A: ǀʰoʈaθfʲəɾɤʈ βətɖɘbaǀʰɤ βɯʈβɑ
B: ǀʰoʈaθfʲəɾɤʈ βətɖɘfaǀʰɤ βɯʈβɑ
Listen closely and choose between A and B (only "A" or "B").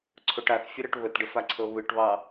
B